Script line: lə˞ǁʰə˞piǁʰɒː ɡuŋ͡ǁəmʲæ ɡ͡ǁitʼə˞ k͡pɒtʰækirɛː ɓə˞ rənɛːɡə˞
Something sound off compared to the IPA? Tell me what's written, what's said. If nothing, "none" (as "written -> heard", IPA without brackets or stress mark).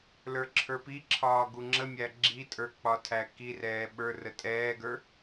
n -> tʼ